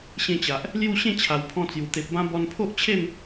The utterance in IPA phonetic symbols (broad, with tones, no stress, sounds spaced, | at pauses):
ɕ ẽ˧ t͡ɕ a˨ ʔ | l j u˥˧ ɕ ẽ˥˧ t͡ɕʰ a˨˩ w pʰ ɔ̃˧ t͡s j u˨˩ t̪ e˨ p̚ b ã˧ b ɔ˧ n pʰ o˦ ʔ t͡ɕʰ e˥˧ m